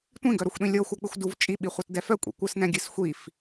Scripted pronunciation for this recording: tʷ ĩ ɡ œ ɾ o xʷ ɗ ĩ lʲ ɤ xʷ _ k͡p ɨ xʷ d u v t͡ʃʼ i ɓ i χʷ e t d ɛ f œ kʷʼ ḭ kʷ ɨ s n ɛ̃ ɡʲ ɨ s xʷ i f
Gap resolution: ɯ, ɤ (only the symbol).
ɤ